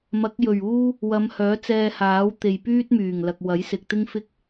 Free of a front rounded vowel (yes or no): no